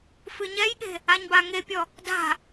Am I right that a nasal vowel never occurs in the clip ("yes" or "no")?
yes